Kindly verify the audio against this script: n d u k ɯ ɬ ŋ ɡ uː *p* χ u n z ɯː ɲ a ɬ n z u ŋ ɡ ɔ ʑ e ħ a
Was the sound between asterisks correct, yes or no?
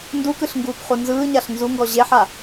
yes